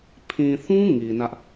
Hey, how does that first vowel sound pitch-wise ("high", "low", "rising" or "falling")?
low